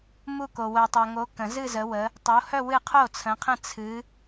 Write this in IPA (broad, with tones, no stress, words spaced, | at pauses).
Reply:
mu˥˧ko˨ wœ˨tˤo˨ŋo˨˦ kə̃˨˩˦zɨ˥˧ zə˨˦wə˨˦ | tˤo˨˦hœ˥˧ wɨ˥˩ qʰo˥˩t͡sʰə̃˨˦qʰə̃˥˩ t͡sʰɨ˨˦